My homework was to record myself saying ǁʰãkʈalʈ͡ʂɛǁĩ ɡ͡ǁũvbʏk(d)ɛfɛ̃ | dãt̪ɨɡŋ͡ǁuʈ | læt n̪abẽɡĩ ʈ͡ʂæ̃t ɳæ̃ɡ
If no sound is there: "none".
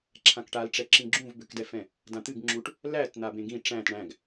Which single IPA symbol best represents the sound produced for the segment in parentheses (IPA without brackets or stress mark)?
d